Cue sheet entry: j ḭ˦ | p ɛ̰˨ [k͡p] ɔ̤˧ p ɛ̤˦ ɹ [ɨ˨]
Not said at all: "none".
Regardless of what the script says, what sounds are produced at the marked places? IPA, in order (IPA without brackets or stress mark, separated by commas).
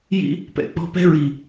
k͡p, i˨